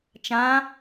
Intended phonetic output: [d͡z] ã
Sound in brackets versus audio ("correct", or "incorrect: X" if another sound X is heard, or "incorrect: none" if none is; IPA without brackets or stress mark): incorrect: t͡ʃ